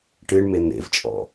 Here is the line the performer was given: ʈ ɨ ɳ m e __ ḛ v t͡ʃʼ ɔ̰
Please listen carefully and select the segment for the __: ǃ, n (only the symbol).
n